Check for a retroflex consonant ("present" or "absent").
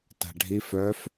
present